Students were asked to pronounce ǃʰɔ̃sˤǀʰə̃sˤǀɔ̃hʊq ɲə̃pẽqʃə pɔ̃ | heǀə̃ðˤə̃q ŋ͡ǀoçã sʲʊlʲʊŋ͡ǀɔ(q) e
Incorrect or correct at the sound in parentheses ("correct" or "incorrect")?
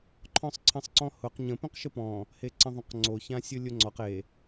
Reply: correct